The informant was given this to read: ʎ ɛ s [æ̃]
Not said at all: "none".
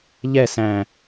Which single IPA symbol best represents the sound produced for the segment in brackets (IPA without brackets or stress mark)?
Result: æ̃